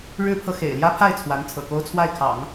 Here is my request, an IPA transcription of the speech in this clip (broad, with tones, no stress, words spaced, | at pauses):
ɻɻ̩˥pʰɤ˨ xḛ˨˩ɪ̯ljä˥pʰa˥˩ɪ̯t͡sʰwa˧˥n t͡sʰɤ̰˨˩ko˥ʊ̯t͡sʰwa˥˩ɪ̯kʰɑ̰˨˩˦ŋ